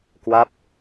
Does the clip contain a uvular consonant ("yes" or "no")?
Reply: no